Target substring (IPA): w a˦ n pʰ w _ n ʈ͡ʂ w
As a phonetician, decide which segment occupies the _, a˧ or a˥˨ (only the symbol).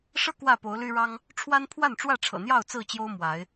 a˥˨